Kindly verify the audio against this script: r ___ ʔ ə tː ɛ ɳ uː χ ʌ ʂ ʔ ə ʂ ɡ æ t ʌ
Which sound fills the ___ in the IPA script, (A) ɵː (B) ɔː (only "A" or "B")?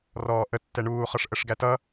B